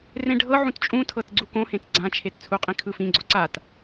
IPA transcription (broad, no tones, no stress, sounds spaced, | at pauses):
r ẽ ɖʱ ɤ ʕ ũ t t͡ʃʼ ũ tʰ ɤ t ɡ͡ǀ u k õ h ẽ t ɡ͡ǀ ã t͡ʃʰ e t t͡sʰ u qʼ ĩ kʰ ɯ f ĩ ɡ͡ǀ o ǀ a t